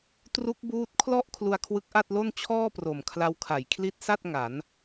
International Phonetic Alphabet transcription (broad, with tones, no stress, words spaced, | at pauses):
tru˦˥k̚ buː˦˥t̚kʰlɔ˥˩ʔ kʰlu˧a̯kʰwɯ˦˥k̚ʔa˥˩t̚lo˥˩n t͡ɕʰɔː˥˩pro˨˩mkʰla˧wkʰa˩˦j kʰli˦˥t̚sa˥˩t̚ ŋa˩˦n